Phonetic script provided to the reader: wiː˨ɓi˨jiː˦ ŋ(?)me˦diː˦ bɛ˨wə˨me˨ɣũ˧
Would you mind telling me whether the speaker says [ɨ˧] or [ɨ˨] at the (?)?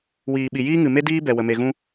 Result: ɨ˨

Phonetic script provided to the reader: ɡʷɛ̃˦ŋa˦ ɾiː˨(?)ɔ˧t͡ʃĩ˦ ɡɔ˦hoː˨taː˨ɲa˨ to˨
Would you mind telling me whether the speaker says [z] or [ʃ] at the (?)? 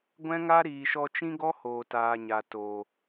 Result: ʃ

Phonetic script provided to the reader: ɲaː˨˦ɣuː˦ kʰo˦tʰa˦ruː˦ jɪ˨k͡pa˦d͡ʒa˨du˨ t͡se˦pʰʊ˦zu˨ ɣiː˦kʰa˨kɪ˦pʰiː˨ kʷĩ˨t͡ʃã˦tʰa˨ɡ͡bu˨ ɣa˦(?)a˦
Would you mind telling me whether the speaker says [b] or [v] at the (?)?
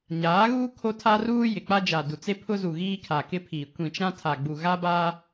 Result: b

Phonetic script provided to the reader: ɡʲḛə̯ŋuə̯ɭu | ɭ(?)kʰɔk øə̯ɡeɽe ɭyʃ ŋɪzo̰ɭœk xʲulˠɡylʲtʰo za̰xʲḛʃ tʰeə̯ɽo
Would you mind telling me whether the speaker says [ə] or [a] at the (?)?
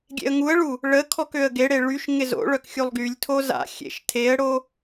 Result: ə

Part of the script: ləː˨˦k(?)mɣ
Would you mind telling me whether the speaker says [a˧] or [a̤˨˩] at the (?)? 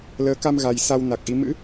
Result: a˧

